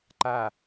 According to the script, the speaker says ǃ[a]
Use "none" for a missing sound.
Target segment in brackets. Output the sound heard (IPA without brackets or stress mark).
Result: a